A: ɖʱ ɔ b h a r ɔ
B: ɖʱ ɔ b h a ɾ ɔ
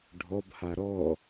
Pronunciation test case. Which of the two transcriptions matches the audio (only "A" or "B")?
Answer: B